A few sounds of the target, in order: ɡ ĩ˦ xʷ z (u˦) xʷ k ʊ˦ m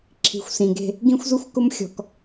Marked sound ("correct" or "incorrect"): correct